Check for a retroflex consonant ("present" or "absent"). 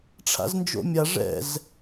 present